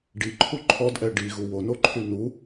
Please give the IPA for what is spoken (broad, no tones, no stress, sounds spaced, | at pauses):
ɖ i ǃʰ u ǃʰ ɔ d ʔ ɛ ɖ i ɣ u w o n o ǃʰ y n u